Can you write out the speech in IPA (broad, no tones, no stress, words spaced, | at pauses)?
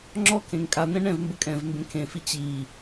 ŋ͡ǁɔ kʰẽŋkʼan̪ɛ̃ ɳɛ̃vmbə kʼɛ̃vmbẽ kʰẽfi t͡ɕi